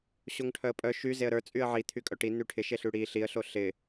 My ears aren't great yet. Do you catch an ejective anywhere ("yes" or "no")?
yes